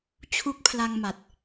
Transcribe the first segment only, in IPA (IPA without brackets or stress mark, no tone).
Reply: t͡ɕʰ